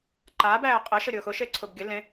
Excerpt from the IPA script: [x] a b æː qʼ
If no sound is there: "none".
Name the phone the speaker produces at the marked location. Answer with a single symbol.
ǃ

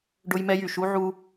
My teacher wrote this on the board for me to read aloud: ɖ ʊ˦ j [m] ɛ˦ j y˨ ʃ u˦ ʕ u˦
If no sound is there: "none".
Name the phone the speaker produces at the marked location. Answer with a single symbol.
m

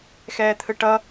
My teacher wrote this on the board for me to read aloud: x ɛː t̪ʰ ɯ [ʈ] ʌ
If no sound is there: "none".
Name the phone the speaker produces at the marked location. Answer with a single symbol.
ʈ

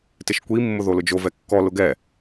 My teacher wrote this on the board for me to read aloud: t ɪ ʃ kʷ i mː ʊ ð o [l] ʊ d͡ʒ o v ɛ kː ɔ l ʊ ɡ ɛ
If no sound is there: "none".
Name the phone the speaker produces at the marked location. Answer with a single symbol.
l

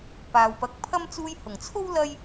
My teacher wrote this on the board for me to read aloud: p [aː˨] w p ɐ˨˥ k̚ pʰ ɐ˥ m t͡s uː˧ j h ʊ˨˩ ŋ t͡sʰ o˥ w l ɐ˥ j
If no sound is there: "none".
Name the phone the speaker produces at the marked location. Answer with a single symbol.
aː˨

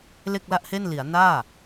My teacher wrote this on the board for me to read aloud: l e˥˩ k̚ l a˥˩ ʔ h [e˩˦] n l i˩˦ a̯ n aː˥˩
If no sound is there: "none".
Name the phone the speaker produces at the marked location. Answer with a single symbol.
e˥˩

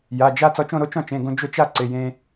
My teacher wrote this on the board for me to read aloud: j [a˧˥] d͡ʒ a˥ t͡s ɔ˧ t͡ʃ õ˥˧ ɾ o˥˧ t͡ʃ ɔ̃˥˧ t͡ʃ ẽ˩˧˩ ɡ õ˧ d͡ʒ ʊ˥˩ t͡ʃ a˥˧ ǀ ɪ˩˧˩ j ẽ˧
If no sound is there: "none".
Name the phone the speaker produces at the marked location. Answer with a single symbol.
a˩˧˩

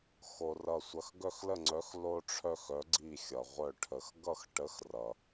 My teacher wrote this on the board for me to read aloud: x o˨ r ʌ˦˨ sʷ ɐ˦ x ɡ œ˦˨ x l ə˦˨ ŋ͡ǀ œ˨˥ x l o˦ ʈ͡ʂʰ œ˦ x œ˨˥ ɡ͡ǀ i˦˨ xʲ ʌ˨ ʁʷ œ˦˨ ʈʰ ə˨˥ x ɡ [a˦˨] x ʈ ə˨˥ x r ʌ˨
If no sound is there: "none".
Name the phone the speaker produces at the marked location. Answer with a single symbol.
ʌ˦˨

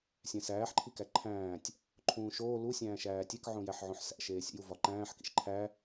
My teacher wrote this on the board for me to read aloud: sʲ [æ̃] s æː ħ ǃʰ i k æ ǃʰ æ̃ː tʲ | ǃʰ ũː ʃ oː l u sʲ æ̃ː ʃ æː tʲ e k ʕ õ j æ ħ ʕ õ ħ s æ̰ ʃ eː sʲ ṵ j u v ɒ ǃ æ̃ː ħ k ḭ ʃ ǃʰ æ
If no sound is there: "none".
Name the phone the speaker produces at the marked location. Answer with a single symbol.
æ̃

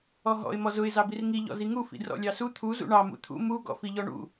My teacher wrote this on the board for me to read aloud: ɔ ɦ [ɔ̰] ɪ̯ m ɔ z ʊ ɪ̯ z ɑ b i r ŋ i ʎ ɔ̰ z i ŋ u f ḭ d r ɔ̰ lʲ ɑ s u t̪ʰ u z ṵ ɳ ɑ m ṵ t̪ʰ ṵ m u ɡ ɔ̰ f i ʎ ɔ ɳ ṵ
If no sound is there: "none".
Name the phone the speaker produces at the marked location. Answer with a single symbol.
ɔ̰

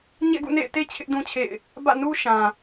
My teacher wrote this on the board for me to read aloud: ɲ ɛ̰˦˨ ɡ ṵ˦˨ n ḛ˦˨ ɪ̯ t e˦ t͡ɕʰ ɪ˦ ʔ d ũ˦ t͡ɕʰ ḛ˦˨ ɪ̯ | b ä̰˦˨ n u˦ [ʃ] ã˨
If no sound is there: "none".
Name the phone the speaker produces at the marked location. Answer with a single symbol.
ʃ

